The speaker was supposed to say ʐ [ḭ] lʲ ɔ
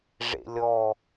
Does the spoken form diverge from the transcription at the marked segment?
yes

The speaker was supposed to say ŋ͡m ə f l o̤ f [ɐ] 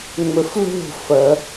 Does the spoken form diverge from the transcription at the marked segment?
no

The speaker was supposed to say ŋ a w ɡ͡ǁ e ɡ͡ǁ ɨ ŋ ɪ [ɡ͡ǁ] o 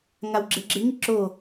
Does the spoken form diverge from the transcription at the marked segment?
yes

